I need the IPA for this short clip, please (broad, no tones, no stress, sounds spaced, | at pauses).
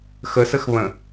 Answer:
x ə s ə x β ə̃